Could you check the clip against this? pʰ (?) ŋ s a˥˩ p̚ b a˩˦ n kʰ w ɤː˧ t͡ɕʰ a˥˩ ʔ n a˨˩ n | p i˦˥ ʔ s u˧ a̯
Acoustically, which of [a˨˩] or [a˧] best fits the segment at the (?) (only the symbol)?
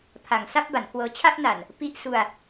a˨˩